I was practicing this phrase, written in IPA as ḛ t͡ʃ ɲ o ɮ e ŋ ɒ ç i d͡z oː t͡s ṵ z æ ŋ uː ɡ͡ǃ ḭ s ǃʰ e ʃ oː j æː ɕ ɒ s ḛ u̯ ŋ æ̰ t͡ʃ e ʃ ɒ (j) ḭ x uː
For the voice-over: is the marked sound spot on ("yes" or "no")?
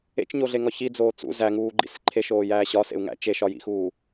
yes